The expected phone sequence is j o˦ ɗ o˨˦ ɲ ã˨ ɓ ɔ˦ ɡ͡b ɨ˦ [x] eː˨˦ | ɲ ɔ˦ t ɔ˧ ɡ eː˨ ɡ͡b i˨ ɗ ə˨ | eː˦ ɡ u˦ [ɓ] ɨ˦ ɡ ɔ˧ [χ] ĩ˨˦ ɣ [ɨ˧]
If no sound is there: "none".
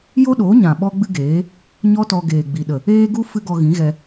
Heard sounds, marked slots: ɡ, f, ɣ, ɛ˧

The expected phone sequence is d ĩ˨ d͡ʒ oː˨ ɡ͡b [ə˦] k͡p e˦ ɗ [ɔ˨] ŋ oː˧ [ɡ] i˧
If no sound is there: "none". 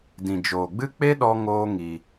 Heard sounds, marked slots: ɨ˦, ɔ˧, ŋ

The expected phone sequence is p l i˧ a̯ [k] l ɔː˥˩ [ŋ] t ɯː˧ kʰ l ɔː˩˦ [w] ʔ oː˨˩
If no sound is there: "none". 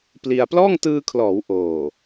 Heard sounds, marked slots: p, ŋ, w

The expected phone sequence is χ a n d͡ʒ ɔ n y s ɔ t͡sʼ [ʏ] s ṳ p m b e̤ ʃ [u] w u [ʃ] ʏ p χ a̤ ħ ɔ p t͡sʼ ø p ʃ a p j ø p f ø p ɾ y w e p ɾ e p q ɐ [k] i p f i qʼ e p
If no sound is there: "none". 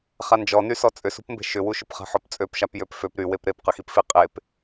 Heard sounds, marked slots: ʏ, ʏ, ʃ, x

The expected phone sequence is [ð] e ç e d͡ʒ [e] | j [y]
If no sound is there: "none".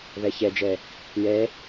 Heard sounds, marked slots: ð, e, e

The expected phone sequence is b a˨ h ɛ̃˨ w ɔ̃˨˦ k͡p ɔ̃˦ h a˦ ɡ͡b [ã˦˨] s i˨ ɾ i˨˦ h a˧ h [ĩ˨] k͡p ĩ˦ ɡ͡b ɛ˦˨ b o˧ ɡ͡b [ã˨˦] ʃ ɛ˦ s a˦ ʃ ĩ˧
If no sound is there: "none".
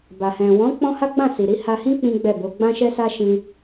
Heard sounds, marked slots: ã˦˨, ĩ˦, ã˦

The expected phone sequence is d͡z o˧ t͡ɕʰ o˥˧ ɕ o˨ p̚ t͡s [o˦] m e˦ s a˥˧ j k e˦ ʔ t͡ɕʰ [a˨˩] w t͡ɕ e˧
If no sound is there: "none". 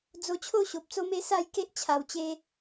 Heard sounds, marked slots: o˦, a˨˩

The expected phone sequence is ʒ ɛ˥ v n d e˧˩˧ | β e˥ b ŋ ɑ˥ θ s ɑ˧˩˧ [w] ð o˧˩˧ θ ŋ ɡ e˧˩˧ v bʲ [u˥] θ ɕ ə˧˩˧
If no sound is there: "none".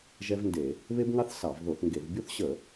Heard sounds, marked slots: v, u˥

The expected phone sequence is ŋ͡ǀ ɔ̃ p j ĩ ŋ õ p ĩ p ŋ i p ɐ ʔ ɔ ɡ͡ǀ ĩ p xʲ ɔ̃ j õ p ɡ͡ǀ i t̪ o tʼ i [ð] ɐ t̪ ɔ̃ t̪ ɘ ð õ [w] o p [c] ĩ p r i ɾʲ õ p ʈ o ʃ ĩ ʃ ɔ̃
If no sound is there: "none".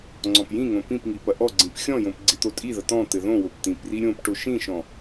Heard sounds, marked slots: ð, w, t̪

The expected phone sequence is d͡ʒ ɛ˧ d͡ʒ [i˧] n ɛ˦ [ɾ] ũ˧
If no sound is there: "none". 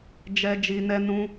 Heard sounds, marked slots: i˧, n

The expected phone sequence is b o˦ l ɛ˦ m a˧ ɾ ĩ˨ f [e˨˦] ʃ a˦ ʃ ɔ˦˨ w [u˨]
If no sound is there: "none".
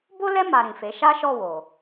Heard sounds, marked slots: e˨˦, o˨

